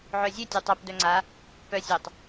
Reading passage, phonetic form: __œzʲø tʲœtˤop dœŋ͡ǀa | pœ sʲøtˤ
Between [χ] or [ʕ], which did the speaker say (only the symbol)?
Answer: ʕ